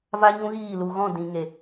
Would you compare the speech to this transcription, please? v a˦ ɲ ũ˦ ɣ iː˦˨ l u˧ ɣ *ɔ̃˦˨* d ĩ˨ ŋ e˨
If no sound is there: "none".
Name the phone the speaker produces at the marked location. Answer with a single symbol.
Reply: ɔ̃˦˨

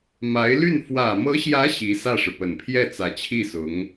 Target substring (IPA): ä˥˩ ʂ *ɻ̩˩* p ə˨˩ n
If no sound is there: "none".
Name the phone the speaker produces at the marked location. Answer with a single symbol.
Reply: ɻ̩˩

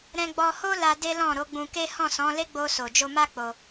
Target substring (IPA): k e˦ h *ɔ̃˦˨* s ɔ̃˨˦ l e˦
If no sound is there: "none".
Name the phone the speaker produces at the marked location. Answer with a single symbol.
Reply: ɔ̃˦˨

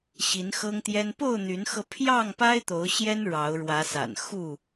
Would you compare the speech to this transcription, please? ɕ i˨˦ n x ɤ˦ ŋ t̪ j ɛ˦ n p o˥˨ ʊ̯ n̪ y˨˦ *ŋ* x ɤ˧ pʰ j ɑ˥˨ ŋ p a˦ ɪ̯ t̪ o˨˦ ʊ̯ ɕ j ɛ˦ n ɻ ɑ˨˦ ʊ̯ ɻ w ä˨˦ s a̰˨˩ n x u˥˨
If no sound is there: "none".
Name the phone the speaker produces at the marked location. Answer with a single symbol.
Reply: n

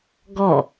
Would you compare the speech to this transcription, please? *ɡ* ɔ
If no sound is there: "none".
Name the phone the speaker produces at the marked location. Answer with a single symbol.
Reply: ɡ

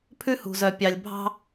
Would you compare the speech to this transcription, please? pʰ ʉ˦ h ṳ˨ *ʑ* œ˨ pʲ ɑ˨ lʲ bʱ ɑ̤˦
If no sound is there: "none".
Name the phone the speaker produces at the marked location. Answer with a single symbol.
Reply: z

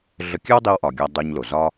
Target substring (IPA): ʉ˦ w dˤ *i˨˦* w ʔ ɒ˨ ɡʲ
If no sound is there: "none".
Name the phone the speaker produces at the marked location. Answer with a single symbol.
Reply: i˧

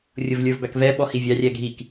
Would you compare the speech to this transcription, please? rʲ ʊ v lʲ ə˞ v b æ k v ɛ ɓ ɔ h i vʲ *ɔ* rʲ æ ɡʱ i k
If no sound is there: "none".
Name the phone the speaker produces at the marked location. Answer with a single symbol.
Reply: ɑ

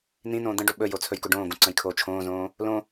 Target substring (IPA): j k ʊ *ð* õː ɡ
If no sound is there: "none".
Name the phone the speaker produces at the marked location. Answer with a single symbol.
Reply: ɖ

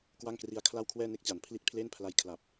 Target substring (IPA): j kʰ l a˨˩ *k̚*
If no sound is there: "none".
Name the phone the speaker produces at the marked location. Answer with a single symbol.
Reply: p̚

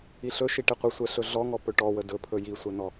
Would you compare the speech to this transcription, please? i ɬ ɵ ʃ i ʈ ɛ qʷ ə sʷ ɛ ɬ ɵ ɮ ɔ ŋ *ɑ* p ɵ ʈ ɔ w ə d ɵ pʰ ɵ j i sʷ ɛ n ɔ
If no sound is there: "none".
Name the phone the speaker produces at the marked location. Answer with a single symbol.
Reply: ɔ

